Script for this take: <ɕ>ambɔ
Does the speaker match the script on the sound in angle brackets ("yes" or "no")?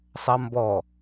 no